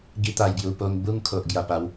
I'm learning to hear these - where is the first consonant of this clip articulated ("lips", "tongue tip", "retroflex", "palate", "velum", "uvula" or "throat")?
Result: velum